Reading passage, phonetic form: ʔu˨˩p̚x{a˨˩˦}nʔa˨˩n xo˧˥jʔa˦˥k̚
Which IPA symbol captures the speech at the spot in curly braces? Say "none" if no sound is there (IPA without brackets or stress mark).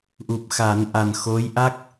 a˨˩˦